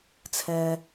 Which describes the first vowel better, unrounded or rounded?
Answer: unrounded